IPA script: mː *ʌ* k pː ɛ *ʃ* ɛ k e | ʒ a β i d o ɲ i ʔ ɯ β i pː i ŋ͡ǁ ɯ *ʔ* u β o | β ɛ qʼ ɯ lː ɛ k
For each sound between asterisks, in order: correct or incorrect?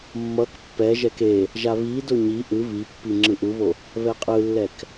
correct, incorrect: ʒ, correct

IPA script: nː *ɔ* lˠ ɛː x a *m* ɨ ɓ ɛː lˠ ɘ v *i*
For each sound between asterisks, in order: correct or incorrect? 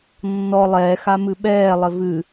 correct, correct, incorrect: ɨ

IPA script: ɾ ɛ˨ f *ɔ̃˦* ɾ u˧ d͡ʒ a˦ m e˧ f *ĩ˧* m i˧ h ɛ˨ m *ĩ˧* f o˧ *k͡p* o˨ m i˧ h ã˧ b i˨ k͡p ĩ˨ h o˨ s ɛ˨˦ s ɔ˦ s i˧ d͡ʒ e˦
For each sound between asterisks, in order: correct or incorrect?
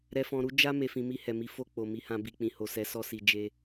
incorrect: ɔ̃˨, correct, incorrect: i˧, correct

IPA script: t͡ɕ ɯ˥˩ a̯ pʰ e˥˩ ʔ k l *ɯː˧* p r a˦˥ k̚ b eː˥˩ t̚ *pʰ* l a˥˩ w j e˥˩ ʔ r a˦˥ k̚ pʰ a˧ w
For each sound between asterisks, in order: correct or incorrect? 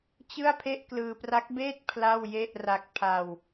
correct, correct

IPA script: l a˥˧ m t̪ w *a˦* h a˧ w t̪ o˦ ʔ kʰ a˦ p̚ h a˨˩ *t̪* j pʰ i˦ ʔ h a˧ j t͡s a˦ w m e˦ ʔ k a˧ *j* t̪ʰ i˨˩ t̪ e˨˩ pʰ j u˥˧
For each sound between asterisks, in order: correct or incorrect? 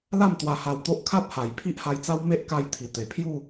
incorrect: a˧, incorrect: none, correct

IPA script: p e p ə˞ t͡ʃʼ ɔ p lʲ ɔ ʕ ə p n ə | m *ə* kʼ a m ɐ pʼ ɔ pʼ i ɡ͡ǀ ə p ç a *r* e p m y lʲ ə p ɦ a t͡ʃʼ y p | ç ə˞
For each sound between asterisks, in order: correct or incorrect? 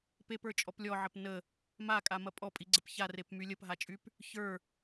incorrect: a, correct

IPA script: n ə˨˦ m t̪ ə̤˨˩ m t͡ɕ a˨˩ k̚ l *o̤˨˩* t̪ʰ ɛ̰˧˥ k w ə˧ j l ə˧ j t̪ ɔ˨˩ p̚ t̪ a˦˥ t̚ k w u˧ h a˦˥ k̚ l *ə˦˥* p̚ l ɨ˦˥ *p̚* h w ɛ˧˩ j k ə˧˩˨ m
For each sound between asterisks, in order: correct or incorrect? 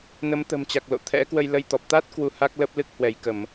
incorrect: o̰˧˨, correct, incorrect: k̚

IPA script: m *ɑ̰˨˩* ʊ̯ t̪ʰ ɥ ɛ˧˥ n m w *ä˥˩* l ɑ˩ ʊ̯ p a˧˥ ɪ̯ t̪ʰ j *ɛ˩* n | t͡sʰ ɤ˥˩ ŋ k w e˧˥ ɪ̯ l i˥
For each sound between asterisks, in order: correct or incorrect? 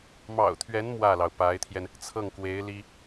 correct, correct, incorrect: ɛ˧

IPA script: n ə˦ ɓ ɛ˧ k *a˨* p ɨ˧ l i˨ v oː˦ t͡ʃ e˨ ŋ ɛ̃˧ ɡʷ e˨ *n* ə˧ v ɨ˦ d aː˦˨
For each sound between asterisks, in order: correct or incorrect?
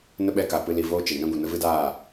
correct, correct

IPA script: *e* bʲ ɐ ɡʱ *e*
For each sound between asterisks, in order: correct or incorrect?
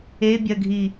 correct, incorrect: i

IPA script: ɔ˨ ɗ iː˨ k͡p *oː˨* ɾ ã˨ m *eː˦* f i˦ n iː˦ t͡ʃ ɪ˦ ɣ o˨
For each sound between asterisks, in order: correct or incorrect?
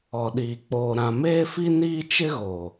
correct, correct

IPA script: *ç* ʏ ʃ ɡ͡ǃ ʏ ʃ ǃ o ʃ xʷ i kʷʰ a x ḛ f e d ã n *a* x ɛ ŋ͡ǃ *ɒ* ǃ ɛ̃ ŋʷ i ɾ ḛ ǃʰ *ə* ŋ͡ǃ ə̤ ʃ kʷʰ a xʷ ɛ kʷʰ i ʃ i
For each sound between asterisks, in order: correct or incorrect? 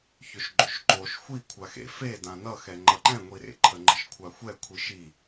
correct, incorrect: ʌ, incorrect: ʌ, correct

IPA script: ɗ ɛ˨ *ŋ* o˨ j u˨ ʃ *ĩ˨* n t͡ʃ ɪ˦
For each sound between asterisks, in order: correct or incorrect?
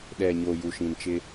incorrect: ɲ, correct

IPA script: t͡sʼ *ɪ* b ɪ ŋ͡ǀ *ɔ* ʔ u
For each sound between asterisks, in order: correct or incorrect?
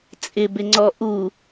correct, correct

